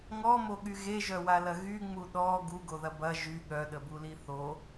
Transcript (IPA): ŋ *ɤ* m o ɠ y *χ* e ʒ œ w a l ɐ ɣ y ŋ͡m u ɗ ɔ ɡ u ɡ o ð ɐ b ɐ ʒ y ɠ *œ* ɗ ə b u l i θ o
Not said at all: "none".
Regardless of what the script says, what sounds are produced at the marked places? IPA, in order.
ɔ, ɣ, œ

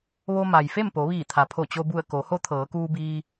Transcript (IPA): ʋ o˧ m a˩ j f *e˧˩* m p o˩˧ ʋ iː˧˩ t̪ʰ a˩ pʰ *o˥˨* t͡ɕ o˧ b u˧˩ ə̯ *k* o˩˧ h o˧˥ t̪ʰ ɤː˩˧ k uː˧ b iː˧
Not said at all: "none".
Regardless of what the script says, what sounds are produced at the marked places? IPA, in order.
e˥˨, o˧˩, k

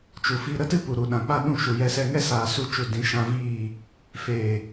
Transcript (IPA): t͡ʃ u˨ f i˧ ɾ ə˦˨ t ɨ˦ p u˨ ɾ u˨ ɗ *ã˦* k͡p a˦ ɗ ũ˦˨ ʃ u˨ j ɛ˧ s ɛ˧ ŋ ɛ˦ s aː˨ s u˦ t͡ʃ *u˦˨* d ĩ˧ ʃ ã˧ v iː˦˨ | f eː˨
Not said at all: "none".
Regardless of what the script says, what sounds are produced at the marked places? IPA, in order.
ã˨, u˦˨

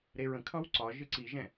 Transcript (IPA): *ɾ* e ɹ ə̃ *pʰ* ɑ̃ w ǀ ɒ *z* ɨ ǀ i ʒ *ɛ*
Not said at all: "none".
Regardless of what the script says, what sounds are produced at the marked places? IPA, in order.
ɾ, kʰ, ʒ, ɛ̃

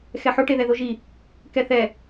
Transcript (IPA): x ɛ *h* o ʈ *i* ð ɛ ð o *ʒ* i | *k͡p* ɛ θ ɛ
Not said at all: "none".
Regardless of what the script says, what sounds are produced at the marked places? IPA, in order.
ħ, e, ʒ, k

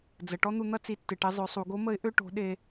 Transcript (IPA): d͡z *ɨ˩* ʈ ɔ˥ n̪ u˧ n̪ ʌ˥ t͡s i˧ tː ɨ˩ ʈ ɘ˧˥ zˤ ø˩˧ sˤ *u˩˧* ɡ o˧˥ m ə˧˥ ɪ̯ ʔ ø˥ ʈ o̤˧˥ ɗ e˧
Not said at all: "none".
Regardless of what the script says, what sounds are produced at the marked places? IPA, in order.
ə˩, u˩˧

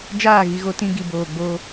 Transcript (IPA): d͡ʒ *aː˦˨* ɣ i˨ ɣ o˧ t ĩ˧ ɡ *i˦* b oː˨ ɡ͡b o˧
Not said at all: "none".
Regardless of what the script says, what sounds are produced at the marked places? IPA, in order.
aː˦˨, i˨

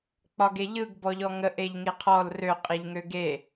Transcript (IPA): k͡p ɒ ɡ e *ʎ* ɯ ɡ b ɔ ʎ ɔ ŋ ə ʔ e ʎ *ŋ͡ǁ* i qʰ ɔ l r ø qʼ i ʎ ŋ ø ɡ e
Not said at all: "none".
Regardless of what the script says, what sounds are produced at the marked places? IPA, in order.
ʎ, ŋ

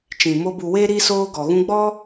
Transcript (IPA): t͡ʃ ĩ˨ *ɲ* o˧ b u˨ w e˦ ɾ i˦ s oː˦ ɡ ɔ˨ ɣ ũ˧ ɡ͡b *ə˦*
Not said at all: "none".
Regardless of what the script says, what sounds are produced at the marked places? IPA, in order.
m, ɔ˦

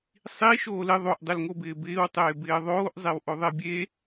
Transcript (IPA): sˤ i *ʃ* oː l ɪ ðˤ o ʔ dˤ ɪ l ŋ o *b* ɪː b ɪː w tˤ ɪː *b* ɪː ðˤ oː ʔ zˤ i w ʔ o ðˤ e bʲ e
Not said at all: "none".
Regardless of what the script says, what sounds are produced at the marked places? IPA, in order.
ʃ, b, b

